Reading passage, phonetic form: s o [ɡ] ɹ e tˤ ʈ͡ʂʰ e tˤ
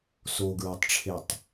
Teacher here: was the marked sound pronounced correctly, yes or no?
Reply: yes